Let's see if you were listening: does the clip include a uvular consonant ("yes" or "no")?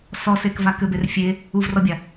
no